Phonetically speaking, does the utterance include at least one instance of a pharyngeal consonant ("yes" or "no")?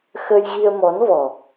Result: no